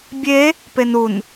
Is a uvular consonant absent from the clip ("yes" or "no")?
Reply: yes